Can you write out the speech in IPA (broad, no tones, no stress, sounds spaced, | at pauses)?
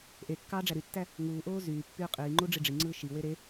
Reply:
ʔ e kː ɑː ɖ͡ʐ æ ɾ y tː æ | ŋ uː ʔ oː z yː pː yː qʼ iː ŋ͡ǃ u ɖ͡ʐ i ɖ͡ʐ i ŋ͡ǀ ɯː ʃ i w e ɾ e